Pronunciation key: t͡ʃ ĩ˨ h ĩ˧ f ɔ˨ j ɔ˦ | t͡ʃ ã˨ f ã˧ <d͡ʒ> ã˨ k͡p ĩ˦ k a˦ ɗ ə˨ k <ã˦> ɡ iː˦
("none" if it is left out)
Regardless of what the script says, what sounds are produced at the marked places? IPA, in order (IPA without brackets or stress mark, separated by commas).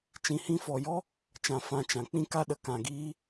t͡ʃ, ã˨